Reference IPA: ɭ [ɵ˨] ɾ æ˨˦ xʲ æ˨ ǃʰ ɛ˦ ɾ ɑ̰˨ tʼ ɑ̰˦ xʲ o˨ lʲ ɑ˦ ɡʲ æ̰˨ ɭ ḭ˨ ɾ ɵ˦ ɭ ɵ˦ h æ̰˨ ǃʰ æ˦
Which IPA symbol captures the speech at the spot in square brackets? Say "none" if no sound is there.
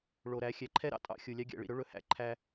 o˨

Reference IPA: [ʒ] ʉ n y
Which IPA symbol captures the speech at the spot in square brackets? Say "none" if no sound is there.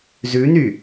z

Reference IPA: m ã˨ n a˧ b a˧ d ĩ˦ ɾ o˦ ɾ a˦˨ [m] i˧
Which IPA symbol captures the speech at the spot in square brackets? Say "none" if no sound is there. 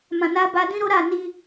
n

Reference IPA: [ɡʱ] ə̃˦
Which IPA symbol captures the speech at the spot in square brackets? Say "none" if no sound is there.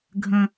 ɡʱ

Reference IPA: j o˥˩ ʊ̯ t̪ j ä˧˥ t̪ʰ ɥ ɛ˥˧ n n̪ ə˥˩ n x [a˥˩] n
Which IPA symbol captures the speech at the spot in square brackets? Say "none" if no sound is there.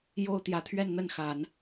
a˨˩˦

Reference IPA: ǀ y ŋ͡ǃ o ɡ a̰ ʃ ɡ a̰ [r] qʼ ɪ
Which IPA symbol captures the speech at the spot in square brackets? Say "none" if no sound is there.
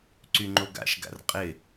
r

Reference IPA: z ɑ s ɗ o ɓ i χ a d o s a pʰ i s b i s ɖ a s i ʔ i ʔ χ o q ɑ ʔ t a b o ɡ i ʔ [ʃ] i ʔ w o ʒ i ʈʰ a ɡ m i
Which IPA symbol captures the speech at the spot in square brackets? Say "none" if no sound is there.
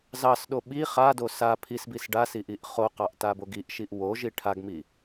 ʃ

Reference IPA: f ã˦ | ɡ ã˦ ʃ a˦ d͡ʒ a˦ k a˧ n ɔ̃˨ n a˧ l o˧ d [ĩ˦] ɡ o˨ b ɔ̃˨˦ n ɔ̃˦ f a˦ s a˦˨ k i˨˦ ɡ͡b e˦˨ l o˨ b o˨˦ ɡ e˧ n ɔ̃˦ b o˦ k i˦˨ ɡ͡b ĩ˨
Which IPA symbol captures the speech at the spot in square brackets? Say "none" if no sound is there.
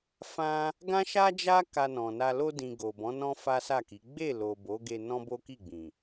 ĩ˨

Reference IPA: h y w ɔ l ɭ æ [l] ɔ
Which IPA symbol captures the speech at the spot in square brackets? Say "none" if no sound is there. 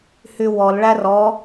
r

